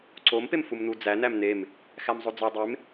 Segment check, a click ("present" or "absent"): present